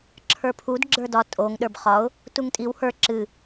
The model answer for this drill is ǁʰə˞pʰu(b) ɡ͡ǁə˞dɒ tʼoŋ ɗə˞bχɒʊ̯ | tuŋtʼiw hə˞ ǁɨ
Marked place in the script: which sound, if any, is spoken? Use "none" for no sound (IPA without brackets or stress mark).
d